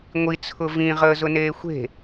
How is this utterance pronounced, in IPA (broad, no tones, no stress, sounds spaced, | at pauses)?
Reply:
ŋʷ i t͡sʰ ʊ v ĩ ʁ əː z ʊ n eː xʷ e̤